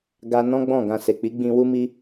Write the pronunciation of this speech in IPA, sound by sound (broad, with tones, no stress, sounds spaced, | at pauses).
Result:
ɡ a˦ n ɔ̃˦ ɡ͡b ɔ̃˦˨ ɡ ã˧ s e˨ k͡p i˨˦ ɡ͡b ĩ˧ w u˦ m i˦